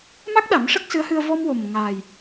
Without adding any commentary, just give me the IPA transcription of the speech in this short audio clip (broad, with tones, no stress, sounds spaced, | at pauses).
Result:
m a˦˥ k̚ ɗ a˨˩˦ m ʂ ə˦˥ k̚ s ɨ˧˥ ə̯ h ɨ˧ ə̯ v ɔ˧ m w o˨˩ m ŋ aː˨˩ j